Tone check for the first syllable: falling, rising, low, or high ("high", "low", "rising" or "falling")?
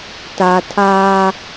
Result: low